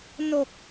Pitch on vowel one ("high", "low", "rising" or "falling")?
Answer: low